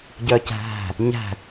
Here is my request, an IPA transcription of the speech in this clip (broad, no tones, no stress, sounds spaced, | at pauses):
ɟ œ c æ̤ ɦ æ̤ | ɲ æ̤